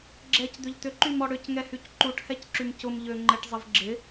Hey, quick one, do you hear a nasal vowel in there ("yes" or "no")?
no